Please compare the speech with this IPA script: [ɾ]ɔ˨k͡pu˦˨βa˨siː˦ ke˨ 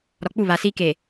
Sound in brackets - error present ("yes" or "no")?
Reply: no